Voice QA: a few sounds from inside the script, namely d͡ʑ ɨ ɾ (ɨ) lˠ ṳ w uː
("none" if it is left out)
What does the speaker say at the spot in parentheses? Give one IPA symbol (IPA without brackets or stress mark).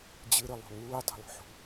ɨ